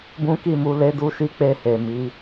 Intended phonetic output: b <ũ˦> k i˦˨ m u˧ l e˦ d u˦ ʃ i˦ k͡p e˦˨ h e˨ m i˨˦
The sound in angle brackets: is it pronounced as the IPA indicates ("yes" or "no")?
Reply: yes